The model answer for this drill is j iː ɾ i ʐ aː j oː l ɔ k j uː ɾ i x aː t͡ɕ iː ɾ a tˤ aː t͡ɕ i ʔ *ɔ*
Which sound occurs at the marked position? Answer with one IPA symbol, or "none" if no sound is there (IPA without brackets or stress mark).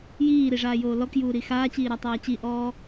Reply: ɔː